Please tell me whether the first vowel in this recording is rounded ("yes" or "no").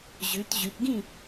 yes